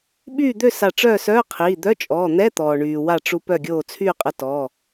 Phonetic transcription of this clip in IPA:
ɓyː˥˨d̪ø˥˨ sa˧˩ʈ͡ʂœː˥˨sœː˧˥˧qʰiː˩˧˩ d̪œ˧˥˧t͡ʃʼɔː˩˧˩n̪ɛ˧˥˧ t̪ɔː˩ɳyː˩wa˧˩ʈ͡ʂu˧ pœ˧˩ɡʲoː˧˩ t͡sʰyː˥˨qʼə˧tɔ˩˧˩

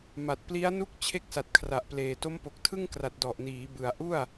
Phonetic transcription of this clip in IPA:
ma˨˩t̚pli˦˥a̯nu˦˥k̚ t͡ɕʰe˥˩k̚sa˨˩t̚kʰra˨˩ʔpleː˨˩ to˦˥mpo˨˩k̚tʰɯ˥˩ŋkra˨˩t̚ dɔ˨˩ʔniː˩˦ bɯ˨˩a̯ʔu˥˩a̯

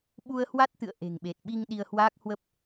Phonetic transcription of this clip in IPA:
ɓu˧ə̯hwa˦˥t̚ t̪ɨ̰˧˨ə̯ ʔe̤˨˩ŋɓe˨˩t̚ɓi˧ŋ ɗi˧ə̯hwaː˦˥k̚hwə˦˥p̚

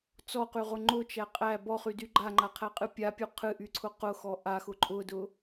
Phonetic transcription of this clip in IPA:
t͡sɔqyʁʊ ŋ͡ǃʊt͡ʃæ qʼæ bɔχydy ɡ͡ǃaŋ͡ǃaqʰæqʼɨ pʲapʲu qʰɨʔyǀʰʊ qʊxɔ ʔaxʊ ǃʼʊdʊ

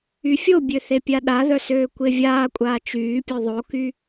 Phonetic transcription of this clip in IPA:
yfʲobʲø θepʲaɗaðœ søːkʷevʲaːkʷʼaː t͡ʃyːpʲo ðˤoky

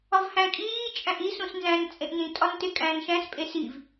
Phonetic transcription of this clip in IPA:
ɒvhæ̃ kʼiː t͡ʃʼæ̃ʔi sũsnzæ̃n t͡sʼẽʔnĩ tʼɒntekʼæ̃ːnʃæ̃s pʼesiv

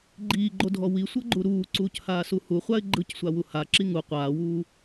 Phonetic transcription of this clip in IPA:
ɡ͡ǃiːɡ͡ǃodʱɔ wisʷɤɡ͡ǃu ɾuːǀuːchaːsu huχʷaɪ̯ ɡ͡ǃɯcsʷawu haǁi ŋu qʷaːwuː

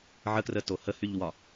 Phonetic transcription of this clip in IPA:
ʕəkrə tohəhyʎwɒ

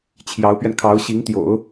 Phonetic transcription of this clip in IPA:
t͡ɕʰjɑ˧˥ʊ̯pɥɛ˧nkʰɑ˧˥ʊ̯ ɕi˧˥ŋt̪jo̰˨˩˦ʊ̯

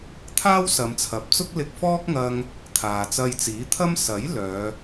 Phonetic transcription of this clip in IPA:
t̪ʰaː˥wsɐ˨˧mt͡sʰɐ˨p̚t͡sʊ˥k̚ lɪ˧k̚fɔː˥k̚ŋɐ˧ŋ | t̪ʰaː˨t͡sɐ˧j t͡siː˨˥t̪ʰɐ˥m sɐ˨˥j lœː˨˧

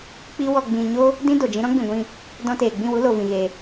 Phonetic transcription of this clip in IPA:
k͡pi˦wɔ˧ ɡ͡bĩ˧ ɲo˦ | dĩ˦ do˨d͡ʒĩ˦ ɾɔ̃˦ɡ͡bĩ˨ɡʷĩ˧ | dɔ̃˧teː˨ɡ͡bĩ˦˨wu˦ lo˨vĩ˨ɣe˨

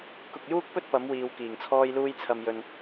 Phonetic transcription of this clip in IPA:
kʊ˨k̚juː˥k̚pɵ˥t̚ pɐ˨˥mwiː˨w kiː˨˩ŋt͡sʰɔː˥jluː˥j t͡sʰɐ˧mjɵ˧n

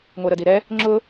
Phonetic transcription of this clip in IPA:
ŋʷɛɾədiɾɛ | ŋ͡ǁʊ

